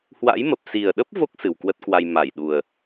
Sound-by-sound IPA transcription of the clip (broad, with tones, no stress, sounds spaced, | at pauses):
h w a̰˧˥ j m ə˨˩ p̚ s i˨˩ ə̯ ɗ ə˦˥ p̚ v o˦˥ k̚ s ɨ˨˩ w k w ə˦˥ t̚ k w a˧ j m a˧˩ j ɗ u˨˩ ə̯